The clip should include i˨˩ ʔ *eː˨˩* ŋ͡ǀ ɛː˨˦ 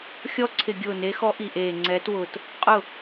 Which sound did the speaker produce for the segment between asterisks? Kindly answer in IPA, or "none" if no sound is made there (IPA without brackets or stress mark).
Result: eː˨˩